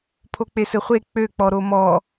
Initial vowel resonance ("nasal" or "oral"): oral